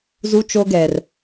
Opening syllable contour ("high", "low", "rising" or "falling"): high